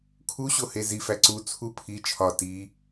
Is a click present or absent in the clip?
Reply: present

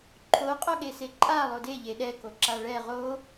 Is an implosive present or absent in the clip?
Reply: present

